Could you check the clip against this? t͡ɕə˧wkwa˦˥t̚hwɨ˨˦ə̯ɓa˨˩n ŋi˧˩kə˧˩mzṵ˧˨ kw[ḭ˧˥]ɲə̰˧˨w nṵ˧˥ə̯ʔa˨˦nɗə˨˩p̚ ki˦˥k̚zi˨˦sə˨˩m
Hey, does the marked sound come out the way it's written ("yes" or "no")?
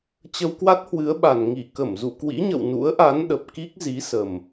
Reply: yes